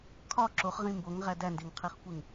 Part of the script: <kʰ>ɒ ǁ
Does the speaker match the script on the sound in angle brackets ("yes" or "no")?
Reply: yes